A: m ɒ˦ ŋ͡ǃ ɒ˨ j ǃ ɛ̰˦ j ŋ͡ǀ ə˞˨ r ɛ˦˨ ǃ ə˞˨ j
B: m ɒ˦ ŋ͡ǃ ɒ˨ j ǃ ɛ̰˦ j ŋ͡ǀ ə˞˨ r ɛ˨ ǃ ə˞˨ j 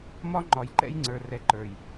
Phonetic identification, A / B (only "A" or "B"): B